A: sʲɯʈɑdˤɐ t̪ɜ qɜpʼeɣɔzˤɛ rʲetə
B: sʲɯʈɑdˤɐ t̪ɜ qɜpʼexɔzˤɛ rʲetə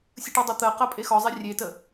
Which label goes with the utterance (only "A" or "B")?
B